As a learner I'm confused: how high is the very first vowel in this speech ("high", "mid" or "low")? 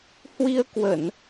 high